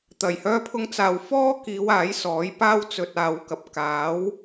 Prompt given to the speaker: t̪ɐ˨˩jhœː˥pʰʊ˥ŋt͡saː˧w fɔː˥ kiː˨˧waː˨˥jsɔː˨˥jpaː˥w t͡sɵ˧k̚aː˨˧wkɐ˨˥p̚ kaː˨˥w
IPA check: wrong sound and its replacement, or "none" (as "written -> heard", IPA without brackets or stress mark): k̚ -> t̚